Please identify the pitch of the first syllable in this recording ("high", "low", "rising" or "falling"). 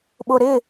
low